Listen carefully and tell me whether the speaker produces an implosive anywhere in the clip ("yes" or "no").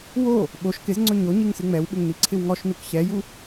yes